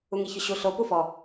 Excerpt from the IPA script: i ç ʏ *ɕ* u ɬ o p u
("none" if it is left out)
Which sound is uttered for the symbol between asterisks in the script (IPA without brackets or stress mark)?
ɕ